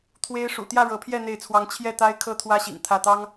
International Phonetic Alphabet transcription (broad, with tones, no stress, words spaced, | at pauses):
t̪ʰwe˦ɪ̯ ʂṵ˨˩t̪jä˥˨ɻɤ˨˦pʰjɛ˥˨ n̪e˥˨ɪ̯t͡sʰwɑ˦ŋ t͡ɕʰjɛ˥˨t̪a˦ɪ̯ kʰɤ˦t̪ʰwä˦ɕḭ˨˩ŋ t̪ʰä˥˨t̪ɑ˦ŋ